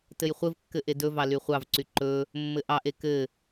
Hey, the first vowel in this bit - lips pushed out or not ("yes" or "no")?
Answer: no